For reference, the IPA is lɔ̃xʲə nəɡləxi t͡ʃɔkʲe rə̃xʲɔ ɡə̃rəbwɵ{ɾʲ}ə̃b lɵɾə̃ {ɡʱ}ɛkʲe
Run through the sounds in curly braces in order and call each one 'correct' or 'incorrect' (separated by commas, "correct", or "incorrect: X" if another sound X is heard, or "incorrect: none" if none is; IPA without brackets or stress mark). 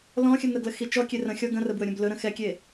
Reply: correct, incorrect: x